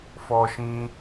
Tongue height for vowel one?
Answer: mid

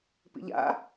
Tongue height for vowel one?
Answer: high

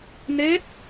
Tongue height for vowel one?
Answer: mid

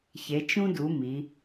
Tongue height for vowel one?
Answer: mid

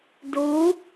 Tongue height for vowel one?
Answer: high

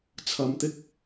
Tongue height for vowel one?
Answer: low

